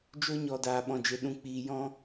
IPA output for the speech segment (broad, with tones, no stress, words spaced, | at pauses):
d͡ʒo˧ɲɔ˨ daː˨ɓɔ̃˨d͡ʒe˨ ɗũ˨k͡piː˨jɔ̃˧